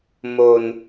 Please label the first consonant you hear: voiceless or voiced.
voiced